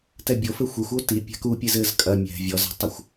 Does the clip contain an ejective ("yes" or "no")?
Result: yes